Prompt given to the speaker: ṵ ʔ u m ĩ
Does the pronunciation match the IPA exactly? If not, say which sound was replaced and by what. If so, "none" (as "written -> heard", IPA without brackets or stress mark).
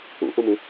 none